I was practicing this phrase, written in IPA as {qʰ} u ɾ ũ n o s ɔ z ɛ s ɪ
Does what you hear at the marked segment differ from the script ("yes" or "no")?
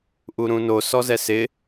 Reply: yes